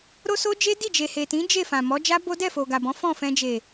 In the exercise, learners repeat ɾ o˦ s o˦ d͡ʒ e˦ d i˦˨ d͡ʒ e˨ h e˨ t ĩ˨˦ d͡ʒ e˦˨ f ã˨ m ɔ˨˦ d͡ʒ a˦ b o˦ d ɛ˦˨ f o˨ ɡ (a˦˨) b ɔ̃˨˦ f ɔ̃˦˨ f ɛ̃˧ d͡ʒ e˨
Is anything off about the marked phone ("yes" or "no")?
yes